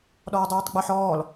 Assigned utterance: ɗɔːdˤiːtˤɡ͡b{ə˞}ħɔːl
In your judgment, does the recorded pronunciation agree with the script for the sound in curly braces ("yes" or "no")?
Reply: yes